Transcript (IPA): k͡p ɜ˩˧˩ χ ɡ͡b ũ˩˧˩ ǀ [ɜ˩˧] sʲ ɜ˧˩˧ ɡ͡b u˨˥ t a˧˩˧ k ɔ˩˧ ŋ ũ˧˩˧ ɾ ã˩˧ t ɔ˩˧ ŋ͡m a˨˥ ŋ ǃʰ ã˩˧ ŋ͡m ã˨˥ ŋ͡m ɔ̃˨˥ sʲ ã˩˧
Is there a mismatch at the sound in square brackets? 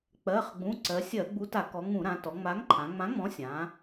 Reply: no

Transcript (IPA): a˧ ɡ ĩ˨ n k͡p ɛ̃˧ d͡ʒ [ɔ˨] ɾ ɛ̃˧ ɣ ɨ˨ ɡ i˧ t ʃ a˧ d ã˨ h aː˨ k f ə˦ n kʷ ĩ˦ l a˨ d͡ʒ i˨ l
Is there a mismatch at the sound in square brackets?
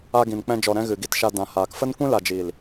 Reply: no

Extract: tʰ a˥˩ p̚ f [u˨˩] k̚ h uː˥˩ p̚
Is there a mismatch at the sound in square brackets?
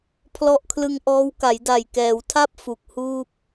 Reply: no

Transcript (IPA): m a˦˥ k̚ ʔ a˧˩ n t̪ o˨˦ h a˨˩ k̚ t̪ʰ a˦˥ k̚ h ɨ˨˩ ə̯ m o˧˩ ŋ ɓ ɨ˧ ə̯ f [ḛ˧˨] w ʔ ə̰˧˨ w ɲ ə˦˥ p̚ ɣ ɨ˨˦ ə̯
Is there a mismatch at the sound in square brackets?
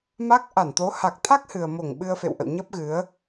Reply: no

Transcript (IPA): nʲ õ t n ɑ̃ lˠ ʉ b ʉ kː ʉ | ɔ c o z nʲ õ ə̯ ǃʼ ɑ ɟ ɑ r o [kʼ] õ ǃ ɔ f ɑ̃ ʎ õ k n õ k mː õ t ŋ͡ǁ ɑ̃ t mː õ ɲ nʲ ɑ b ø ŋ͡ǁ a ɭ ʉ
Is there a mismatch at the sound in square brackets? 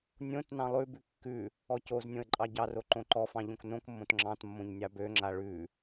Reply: yes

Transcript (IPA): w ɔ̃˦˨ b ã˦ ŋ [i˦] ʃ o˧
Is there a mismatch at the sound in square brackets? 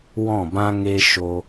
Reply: yes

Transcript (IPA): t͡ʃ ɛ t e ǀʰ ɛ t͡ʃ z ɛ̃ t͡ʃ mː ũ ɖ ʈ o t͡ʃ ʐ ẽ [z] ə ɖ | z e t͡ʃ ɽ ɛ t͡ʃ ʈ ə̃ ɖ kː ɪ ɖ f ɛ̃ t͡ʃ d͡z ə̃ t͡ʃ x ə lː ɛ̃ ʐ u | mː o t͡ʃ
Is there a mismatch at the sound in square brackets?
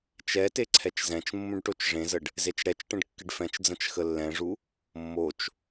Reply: no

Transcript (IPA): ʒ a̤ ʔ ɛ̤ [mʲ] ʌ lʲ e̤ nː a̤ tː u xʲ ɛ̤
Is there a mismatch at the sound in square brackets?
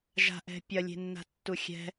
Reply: yes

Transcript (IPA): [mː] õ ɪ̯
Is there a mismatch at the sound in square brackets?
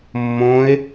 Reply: no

